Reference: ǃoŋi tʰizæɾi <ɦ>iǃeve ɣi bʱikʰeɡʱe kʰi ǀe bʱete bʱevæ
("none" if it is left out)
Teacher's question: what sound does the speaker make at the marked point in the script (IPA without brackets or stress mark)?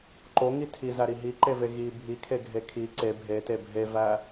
ɦ